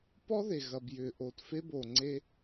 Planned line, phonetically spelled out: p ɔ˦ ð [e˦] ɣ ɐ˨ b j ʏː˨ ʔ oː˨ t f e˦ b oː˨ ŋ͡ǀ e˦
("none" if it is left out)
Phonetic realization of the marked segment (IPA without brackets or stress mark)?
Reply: e˨